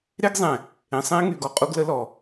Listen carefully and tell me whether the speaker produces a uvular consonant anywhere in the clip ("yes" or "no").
yes